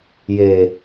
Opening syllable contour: low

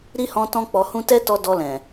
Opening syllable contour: high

